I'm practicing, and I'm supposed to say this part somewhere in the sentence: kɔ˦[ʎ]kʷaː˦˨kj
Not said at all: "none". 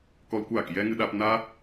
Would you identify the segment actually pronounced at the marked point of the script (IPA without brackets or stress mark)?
l